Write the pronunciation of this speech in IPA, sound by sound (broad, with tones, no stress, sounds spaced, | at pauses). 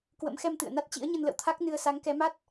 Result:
k w ə̰˧˥ m x ɛ˧ m t̪ ɨ̰˧˨ ə̯ n a˦˥ t̚ t͡ɕ ḭ˧˥ ə̯ ɲ ə˧ n l ə̰˧˨ w t̪ʰ a˦˥ k̚ n ɨ˧ ə̯ s a˨˦ ŋ k ɛ˨˦ m a˦˥ t̚